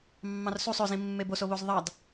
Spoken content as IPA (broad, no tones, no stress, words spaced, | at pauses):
mːɑ̃rsusˤ øzĩ mːebosoβoz ðˤɑd